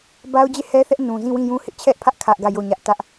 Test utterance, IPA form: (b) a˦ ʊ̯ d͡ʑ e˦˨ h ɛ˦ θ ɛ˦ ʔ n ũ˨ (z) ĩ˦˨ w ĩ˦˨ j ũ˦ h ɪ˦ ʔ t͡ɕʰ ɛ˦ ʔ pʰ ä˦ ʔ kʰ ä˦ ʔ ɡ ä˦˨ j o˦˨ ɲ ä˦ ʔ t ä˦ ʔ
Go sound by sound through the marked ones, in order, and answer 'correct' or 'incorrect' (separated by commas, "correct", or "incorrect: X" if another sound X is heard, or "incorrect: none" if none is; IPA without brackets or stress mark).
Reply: correct, correct